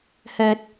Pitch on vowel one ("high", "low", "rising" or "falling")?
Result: low